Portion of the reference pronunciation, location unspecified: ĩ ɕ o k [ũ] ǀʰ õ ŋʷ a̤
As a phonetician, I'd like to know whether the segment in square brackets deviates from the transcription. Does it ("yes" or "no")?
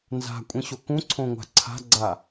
no